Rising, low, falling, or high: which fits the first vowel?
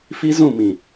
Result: high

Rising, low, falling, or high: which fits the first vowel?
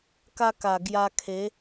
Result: high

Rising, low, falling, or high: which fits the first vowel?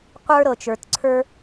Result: high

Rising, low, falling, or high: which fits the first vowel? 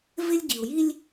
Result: high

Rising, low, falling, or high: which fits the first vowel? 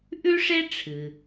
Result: high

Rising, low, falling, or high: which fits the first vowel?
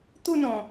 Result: falling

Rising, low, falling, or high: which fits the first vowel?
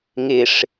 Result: low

